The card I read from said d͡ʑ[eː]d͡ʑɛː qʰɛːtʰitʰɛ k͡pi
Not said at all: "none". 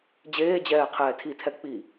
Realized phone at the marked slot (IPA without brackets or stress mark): eː